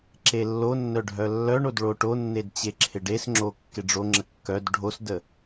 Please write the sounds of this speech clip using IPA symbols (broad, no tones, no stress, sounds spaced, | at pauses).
ǁ e lː o nː œ ɖʱ œ lː œ ɳ o d ɭ o ʈ o nː e d t͡ɕ e ǁʰ ɪ ɖ e s ŋ͡ǁ o kː ɪ ɖ͡ʐ o ŋ͡ǁ ə kː œ d ɖʱ o s d ə